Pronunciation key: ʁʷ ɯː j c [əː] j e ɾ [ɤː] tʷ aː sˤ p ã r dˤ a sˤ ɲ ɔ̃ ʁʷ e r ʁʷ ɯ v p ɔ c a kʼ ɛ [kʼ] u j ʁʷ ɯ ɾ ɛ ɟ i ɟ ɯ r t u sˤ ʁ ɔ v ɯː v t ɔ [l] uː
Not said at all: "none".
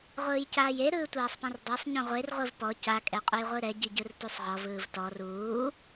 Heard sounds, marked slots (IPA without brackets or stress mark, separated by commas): aː, ɯː, qʼ, r